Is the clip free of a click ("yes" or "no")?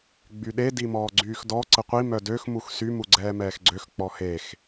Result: no